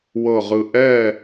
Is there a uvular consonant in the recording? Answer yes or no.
yes